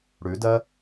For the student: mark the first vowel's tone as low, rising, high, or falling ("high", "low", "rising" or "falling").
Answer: rising